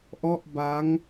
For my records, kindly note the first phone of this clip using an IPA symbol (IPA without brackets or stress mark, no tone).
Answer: ʔ